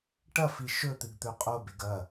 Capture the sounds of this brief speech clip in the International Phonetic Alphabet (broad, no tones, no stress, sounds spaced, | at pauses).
ʈ ɐ f i ʃ ɵ t̪ ɨ ɡ t̪ ɵ qʼ o b e ɡ ɐ